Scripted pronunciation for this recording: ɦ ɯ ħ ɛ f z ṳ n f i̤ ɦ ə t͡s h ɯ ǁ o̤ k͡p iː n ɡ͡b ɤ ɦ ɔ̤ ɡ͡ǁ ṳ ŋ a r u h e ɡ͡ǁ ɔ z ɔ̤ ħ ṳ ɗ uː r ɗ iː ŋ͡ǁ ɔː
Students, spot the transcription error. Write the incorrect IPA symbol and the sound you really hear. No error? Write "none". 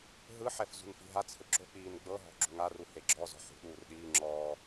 ə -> a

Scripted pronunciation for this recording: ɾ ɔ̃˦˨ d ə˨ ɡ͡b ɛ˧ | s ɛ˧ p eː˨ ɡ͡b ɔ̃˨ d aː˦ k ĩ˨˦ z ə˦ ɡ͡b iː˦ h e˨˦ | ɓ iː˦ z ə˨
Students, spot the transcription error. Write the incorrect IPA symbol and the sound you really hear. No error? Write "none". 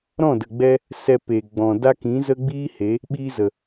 aː˦ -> a˦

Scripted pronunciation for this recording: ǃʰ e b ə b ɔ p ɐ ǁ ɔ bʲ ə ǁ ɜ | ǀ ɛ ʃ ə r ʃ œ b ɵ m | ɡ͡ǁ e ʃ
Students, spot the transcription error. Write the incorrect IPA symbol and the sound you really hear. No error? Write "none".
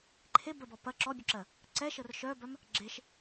ɵ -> œ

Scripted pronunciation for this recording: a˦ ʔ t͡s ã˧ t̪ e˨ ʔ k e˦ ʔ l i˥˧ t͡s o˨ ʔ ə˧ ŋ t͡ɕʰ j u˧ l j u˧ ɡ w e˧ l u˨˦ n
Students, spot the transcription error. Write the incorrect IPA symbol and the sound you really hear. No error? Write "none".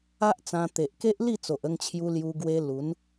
none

